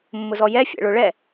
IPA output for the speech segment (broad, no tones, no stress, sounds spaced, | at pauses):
mː ʊ z ɔ j ɛ fʲ ɛ̰ ɭ ʊ ɭ ɛ